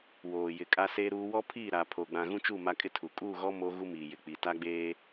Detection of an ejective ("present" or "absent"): present